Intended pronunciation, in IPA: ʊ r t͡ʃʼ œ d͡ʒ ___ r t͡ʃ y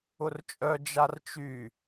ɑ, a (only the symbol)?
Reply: a